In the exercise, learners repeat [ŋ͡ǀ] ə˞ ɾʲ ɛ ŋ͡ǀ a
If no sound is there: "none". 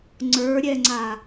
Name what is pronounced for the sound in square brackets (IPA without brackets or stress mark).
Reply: ŋ͡ǀ